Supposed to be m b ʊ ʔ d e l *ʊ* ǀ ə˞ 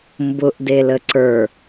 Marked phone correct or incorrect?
incorrect